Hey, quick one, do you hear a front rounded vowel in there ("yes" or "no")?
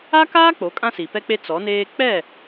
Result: no